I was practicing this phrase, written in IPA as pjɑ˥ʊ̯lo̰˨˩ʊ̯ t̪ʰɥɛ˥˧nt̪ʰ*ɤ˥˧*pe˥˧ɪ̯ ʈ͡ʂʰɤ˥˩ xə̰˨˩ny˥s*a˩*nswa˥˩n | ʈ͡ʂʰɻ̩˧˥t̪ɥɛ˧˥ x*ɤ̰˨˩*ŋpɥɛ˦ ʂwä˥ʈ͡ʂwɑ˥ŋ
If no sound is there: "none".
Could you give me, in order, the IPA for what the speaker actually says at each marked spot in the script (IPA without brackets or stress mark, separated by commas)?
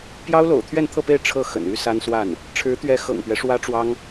ɤ˥˧, a˥, ɤ̰˨˩